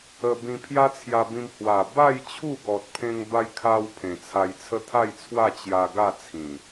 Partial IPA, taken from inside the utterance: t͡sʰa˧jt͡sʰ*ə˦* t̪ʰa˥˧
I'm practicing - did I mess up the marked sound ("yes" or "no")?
no